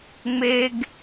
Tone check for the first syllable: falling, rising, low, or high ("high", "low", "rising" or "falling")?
high